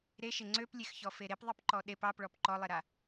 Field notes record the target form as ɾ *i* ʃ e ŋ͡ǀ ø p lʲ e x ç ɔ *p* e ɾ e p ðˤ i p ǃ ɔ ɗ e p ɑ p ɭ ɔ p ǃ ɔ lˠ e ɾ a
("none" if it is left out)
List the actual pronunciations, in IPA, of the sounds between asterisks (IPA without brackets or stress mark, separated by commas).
e, f